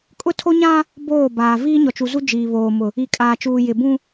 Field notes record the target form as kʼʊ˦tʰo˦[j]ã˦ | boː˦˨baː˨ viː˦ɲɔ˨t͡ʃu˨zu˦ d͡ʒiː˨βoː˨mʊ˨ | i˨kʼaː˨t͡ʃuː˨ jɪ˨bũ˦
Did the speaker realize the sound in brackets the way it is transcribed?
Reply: no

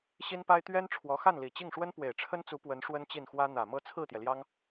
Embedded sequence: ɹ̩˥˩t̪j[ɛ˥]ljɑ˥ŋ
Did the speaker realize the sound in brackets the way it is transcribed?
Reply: no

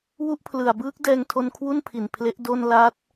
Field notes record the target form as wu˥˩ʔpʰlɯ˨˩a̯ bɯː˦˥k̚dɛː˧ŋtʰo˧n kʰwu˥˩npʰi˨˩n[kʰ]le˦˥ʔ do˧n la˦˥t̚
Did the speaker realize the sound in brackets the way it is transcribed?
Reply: no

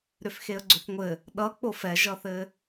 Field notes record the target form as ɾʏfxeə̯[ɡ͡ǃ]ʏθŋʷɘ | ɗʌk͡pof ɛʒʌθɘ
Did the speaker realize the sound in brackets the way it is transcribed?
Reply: no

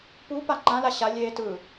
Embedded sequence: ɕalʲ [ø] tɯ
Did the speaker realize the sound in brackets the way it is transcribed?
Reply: no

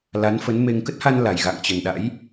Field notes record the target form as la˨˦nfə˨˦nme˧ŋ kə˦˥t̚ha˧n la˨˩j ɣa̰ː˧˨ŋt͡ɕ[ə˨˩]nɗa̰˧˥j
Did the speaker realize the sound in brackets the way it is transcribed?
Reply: yes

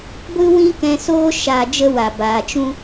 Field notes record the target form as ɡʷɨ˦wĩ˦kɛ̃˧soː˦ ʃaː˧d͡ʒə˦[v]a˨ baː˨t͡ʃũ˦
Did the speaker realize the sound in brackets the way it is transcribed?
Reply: no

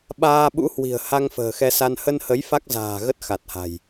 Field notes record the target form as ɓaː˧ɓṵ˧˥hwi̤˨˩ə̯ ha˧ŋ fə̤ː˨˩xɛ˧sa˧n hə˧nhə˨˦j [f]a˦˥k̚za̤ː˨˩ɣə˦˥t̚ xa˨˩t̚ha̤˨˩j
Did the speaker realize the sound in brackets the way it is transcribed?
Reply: yes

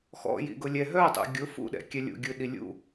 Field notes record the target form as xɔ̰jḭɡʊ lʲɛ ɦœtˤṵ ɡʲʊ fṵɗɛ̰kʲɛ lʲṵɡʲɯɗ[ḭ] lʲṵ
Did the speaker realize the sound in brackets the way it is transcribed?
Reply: no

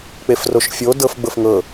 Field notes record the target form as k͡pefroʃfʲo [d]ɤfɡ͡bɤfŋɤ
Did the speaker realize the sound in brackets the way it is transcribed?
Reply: yes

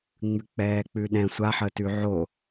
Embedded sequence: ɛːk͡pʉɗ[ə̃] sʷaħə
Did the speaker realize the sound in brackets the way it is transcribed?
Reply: no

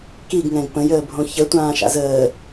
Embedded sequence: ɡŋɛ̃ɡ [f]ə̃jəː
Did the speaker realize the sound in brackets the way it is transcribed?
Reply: no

